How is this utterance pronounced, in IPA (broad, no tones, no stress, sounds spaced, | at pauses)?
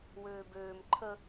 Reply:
w øː b øː m ǃʰ ə